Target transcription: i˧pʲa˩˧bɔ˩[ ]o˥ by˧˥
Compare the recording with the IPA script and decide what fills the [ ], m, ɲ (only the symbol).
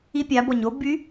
ɲ